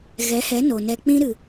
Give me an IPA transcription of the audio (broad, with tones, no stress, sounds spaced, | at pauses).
ɣ ɛ˨˦ h ɛ˨˦ n o˨ n ɛ˧ k͡p ĩ˦ ɾ ɨ˨